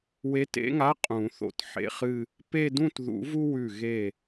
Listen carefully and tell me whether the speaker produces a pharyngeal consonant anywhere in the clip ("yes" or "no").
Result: yes